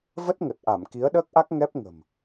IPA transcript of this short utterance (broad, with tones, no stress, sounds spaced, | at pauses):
v ə˦˥ t̚ ŋ ə˨˩ t̚ ʔ a˧˩ m k i˨˦ ə̯ ɗ əː˦˥ k̚ ʔ a˦˥ k̚ ŋ ɛ˦˥ p̚ ŋ ə̤˨˩ m